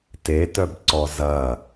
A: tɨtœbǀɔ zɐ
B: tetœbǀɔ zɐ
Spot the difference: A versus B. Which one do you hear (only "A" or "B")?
B